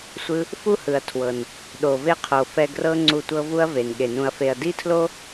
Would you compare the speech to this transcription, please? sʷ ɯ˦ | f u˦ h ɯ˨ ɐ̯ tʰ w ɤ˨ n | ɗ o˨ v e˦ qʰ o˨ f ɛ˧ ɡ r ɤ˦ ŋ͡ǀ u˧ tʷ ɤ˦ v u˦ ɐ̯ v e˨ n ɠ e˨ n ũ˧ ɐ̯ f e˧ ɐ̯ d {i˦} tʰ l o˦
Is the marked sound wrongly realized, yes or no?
no